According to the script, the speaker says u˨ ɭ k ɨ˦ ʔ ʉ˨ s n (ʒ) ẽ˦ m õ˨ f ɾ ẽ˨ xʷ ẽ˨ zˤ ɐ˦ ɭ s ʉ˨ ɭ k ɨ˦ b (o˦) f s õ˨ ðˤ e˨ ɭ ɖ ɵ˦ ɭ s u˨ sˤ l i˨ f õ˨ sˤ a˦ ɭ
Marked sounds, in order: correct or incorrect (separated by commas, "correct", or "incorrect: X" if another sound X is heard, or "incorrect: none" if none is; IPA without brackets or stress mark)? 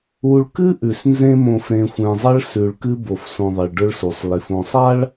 incorrect: z, incorrect: o˨